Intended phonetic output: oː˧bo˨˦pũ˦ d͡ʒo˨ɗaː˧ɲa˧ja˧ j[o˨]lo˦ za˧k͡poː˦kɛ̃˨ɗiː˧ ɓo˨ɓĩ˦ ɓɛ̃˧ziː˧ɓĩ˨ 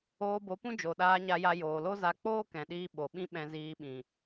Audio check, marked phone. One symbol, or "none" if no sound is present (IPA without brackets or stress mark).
oː˨